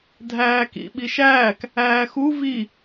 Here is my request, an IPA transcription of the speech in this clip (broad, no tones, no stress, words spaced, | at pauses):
dʱæːkḭ ɓiʃæːk | æːxu vi